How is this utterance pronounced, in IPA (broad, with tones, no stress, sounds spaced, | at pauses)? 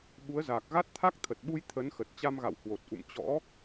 ɓ u˨˦ ə̯ z aː˨˩ k̚ ɣ a˦˥ t̚ t̪ʰ a˦˥ k̚ t̪ʰ ə˨˩ t̚ ɓ u˧ j t̪ʰ ə˨˦ n x ə˨˩ t̚ t͡ɕ a˧ m ɣ a̰˧˨ w h w o˨˩ t̚ ʔ ṵ˧˨ m t͡ɕ ɔ̰˧˥